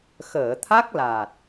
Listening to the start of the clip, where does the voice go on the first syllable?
low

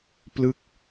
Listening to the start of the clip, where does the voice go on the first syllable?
falling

